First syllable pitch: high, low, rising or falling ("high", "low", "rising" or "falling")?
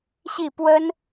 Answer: falling